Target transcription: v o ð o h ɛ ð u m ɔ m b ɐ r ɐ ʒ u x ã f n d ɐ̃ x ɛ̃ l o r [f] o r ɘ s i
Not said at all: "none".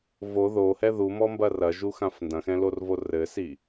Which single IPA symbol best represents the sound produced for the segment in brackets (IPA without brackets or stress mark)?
v